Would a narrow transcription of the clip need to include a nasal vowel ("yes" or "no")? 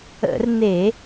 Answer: no